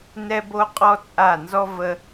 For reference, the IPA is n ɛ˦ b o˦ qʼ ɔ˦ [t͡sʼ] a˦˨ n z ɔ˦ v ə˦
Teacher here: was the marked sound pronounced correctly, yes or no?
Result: yes